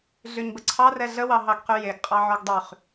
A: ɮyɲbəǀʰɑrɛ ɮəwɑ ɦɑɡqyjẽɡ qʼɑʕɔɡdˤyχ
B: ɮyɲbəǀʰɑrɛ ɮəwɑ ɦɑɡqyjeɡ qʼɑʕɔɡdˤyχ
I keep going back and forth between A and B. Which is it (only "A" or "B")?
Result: B